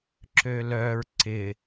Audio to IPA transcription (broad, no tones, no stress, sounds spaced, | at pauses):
ǁ ø l œ ɹ ǀ ɪ